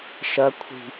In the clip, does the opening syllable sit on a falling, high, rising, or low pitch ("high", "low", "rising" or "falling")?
rising